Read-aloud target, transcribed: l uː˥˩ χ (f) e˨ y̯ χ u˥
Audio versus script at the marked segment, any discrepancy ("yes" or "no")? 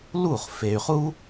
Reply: no